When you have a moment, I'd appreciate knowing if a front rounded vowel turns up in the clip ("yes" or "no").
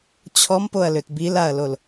yes